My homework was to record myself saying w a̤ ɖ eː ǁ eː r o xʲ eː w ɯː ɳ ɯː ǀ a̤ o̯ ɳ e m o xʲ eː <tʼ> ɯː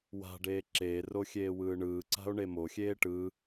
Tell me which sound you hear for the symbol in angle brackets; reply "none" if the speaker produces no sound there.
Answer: ʈ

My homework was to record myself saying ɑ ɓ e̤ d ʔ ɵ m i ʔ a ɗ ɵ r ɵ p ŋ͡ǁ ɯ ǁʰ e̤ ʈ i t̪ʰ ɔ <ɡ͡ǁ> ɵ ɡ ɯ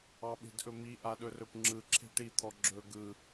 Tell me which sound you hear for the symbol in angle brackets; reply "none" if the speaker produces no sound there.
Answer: ɡ͡ǁ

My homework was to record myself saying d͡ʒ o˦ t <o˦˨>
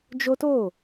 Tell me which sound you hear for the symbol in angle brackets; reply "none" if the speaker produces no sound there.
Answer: o˦˨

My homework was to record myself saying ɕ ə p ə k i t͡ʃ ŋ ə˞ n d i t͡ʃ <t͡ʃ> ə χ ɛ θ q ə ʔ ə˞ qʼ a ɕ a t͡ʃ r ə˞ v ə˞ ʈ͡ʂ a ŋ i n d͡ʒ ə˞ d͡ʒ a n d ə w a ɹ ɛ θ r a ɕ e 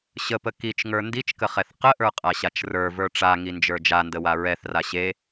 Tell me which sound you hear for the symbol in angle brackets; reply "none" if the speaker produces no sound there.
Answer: k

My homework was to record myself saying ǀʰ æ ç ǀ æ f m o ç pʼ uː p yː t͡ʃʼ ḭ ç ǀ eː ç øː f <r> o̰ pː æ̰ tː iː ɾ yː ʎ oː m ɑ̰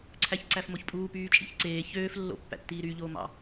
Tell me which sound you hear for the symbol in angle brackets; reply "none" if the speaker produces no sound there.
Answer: lː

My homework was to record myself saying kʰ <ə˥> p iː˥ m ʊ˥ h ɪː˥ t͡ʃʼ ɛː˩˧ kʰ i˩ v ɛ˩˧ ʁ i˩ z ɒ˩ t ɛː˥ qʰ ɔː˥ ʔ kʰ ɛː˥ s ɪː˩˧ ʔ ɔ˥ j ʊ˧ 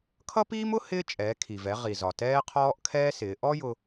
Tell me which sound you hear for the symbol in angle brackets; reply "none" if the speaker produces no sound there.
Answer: ʌ˥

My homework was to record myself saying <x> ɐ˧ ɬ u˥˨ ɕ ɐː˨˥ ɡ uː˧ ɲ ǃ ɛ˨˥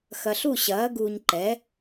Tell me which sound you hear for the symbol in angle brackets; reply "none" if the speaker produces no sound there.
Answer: x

